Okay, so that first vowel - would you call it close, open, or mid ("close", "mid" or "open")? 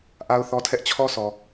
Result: open